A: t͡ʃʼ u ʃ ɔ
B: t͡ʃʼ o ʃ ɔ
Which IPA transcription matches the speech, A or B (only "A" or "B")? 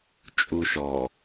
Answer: A